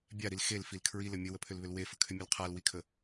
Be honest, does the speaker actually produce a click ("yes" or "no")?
no